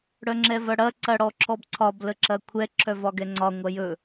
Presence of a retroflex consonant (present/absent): present